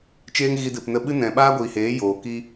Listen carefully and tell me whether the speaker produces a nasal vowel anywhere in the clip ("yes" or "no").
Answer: yes